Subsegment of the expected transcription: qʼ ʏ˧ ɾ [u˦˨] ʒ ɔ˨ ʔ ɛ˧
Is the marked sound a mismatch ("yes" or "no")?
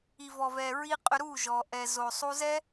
no